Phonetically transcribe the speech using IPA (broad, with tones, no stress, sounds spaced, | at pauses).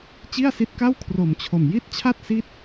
t͡ɕ i˥˩ a̯ s i˦˥ t̚ k a˥˩ w kʰ r o˨˩ m t͡ɕʰ o˨˩ m j i˥˩ t̚ t͡ɕʰ a˥˩ t̚ s i˦˥ t̚